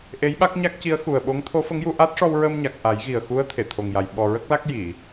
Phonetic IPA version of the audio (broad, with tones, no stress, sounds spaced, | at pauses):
ʔ e˧˥ j ɓ a˦˥ k̚ ɲ a˦˥ k̚ c i˧˥ ə̯ x u˨˩ ə̯ ɓ o˧˥ ŋ t̪ʰ o˧˥ f ə˧˥ ŋ j u˧ ʔ a˦˥ t̚ ʂ ɔ˧ w ɹ ə˧ m ɲ a˨˩ k̚ ʔ a˨˩˦ j ɣ i˨˩ ə̯ x u˧˥ ə̯ t̪ʰ e˨˩˨ t̪ʰ o˨˩ ŋ j a˨˩ j ɓ ɔ˨˩ ɹ ə˦˥ k̚ l a˦˥ k̚ j i˨˩˨